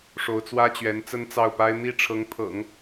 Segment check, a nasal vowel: absent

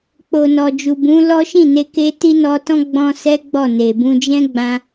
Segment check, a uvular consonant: absent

